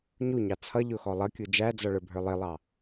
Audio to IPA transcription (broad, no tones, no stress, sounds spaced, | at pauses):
ɲ u ɲ ɑ t͡sʰ ʌ ʎ ʊ x ɔ lˠ ʌ kʲ u d͡ʒ æ d͡z ɔ ɭ ə˞ bʱ ə˞ lˠ ɪ lˠ ɑ